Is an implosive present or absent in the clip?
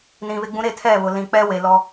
absent